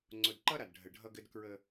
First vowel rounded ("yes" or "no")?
yes